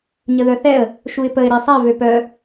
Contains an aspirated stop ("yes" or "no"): no